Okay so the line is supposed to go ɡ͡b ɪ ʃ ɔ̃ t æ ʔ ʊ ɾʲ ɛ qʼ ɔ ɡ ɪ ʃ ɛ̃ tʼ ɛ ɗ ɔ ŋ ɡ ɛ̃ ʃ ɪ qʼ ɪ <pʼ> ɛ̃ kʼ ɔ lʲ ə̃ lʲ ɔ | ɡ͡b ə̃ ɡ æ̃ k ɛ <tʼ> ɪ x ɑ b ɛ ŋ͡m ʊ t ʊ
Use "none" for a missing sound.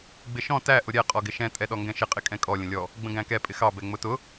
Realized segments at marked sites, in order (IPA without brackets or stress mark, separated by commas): kʼ, pʼ